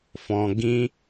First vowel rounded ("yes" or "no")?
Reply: yes